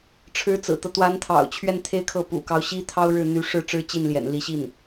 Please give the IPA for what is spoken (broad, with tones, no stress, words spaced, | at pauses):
ʈ͡ʂʰɻ̩˧˥t͡sɹ̩˨˩t̪ɤ˦ t̪wa˧˥nt̪ʰɑ̰˨˩ʊ̯ t͡ɕʰɥɛ˥˧nt̪ʰe˥˧ɪ̯kʰɤ˥˩ pṵ˨˩kɑ˦ʊ̯ɕi˥ t̪ʰɑ˥ʊ̯ɻɻ̩˥˩ n̪y˧˥ʂɻ̩˥˩ ʈ͡ʂɻ̩˥t͡ɕi˥˩nljɛ̰˨˩n li˧˥ɕi˥˩n